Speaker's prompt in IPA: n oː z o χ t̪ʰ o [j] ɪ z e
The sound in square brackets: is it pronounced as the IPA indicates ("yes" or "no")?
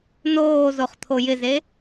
yes